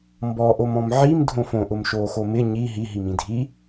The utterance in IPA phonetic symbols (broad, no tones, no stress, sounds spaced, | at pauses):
m b ɔ ʔ o m ɔ̃ m ʕ i m dʱ õ f õ ʔ ʊ m ʃ oː x o m ɪ ɲ i ɦ i ɦ i m ĩ dʱ i